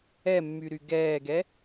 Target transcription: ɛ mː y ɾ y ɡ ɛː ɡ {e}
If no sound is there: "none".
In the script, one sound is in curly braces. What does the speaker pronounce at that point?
ɛ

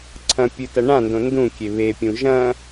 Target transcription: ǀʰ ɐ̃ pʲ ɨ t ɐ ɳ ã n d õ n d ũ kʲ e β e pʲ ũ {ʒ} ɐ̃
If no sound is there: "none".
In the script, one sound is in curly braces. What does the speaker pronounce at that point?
ʒ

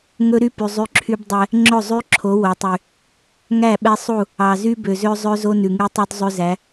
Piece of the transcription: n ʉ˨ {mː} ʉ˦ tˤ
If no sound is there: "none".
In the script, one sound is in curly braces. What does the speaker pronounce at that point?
ŋ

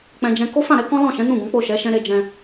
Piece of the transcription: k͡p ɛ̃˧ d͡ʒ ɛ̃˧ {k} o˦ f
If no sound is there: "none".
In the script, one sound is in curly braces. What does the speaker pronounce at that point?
k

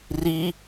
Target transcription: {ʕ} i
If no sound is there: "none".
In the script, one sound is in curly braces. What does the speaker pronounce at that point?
r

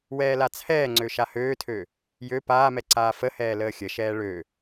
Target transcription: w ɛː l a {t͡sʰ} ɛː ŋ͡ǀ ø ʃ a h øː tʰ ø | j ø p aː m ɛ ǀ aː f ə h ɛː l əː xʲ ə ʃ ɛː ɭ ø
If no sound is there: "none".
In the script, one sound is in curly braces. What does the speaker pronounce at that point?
t͡sʰ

